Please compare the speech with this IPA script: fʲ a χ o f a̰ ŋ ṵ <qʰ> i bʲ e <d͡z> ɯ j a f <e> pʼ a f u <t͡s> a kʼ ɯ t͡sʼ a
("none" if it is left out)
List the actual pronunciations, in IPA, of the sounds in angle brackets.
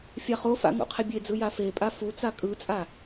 qʰ, d͡z, e, t͡s

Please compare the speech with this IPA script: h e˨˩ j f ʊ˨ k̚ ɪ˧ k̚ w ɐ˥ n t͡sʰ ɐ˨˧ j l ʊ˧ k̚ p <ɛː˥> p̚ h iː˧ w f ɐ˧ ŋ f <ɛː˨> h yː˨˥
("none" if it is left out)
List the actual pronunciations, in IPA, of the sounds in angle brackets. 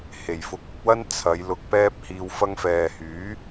ɛː˥, ɛː˨

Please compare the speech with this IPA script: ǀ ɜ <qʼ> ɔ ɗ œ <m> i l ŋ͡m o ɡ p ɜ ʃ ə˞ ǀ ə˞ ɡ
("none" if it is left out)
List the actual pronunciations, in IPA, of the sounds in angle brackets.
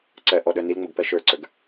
ʔ, n

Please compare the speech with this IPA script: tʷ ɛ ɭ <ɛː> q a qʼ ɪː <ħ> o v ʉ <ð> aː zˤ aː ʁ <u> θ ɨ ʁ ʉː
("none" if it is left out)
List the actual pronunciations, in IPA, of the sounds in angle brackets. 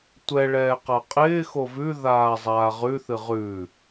ɛː, x, ð, ʉ

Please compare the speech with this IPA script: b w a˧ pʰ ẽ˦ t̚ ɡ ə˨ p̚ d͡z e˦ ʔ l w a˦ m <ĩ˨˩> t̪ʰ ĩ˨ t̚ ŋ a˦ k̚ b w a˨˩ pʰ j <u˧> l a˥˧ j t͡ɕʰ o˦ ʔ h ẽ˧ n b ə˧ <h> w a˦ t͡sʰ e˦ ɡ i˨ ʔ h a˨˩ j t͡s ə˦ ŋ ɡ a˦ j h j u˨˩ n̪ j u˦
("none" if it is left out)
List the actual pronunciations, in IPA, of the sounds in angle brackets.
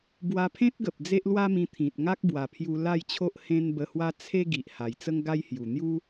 ĩ˧, u˧, h

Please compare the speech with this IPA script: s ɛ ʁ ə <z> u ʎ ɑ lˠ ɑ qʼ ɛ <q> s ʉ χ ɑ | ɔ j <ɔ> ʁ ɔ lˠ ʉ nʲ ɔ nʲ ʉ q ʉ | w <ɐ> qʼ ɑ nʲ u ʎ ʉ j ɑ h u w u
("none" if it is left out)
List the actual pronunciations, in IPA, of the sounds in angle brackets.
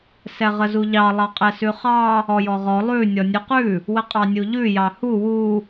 z, none, ɔ, ə

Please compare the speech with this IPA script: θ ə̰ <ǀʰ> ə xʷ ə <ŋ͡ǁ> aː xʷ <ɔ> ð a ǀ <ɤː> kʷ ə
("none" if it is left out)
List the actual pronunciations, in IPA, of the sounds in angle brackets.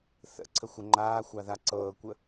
ǀʰ, ŋ͡ǃ, ɑ, ɤː

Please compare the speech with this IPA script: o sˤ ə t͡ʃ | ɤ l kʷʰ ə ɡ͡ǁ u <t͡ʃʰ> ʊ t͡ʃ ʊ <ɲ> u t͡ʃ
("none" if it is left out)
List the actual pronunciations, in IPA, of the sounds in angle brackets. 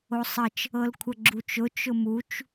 t͡ʃ, m

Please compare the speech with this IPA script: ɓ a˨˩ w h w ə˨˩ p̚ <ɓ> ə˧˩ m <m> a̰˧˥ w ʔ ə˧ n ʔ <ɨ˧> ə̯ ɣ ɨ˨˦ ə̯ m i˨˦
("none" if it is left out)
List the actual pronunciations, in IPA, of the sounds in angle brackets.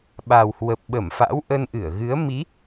ɓ, f, ɨ˧˩

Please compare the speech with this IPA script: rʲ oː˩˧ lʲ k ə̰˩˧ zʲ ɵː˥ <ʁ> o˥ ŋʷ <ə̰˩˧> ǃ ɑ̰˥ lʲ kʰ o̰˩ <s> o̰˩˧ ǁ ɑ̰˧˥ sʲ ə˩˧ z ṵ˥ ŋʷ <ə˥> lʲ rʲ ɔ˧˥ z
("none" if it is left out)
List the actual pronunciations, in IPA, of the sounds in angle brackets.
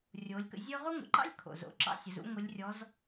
ʁ, ə̰˩˧, z, ə˧˥

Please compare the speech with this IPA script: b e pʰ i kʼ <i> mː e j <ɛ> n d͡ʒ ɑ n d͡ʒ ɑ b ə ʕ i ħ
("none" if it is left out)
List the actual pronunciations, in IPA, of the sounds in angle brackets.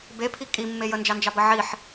i, ə

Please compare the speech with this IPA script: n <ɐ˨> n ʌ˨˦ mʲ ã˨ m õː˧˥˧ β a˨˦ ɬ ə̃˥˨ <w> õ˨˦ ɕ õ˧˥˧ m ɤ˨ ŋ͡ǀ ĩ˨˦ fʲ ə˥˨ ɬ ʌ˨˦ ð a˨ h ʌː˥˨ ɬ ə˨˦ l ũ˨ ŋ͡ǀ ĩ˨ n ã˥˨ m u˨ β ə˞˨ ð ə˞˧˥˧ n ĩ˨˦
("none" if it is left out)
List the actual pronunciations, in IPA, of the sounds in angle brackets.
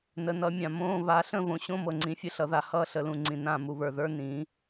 ə˨, β

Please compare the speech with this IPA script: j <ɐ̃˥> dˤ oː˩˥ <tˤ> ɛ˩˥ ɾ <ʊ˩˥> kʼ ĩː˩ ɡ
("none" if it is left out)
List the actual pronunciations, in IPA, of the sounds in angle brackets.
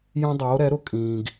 ɐ̃˥, ɾ, ʊ˩˥

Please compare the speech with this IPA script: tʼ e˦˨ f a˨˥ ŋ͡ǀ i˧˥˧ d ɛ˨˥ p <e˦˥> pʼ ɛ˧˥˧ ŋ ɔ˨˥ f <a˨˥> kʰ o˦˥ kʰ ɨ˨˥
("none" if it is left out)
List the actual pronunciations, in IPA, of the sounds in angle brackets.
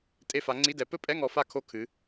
ɘ˦˥, a˦˨

